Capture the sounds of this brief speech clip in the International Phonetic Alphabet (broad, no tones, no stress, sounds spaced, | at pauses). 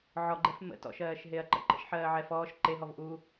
ʕ ɔ ɡ͡ǃ ɛ f m ə̰ t ɔ̰ ʃ ɜː ʃ ɦ e ɐ̯ ǃ ə̰ ǃ ə̰ ʃ ħ ɜː ʕ ɛ f ɔː ʃ ǃ e ɦ ɔ v ʔ u